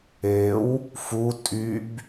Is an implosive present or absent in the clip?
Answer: absent